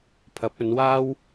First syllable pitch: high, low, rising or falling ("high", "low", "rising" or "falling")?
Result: rising